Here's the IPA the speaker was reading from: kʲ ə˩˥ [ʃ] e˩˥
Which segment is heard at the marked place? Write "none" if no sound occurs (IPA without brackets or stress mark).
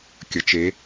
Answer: t͡ʃ